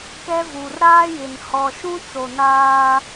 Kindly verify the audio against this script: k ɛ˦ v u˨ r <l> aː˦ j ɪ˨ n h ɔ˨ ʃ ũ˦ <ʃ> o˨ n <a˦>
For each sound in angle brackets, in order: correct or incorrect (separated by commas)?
incorrect, incorrect, incorrect